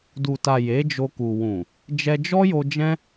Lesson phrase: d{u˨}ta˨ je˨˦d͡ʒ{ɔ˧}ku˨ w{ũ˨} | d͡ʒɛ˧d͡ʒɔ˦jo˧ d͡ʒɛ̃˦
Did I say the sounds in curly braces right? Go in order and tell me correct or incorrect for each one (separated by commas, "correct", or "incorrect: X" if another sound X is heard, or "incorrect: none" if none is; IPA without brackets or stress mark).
correct, incorrect: o˧, correct